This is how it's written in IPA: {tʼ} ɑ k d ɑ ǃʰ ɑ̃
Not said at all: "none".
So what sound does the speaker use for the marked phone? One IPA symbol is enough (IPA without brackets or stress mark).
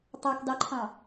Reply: tˤ